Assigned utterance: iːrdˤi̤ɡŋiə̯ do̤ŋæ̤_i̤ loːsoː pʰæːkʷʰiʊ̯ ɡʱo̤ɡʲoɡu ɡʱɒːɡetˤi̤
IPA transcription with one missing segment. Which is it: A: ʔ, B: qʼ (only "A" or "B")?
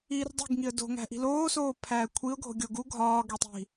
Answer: A